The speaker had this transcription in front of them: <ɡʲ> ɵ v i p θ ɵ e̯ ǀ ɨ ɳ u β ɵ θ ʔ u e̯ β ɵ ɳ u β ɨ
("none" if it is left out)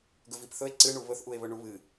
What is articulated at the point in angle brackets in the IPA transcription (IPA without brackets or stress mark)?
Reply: ɡ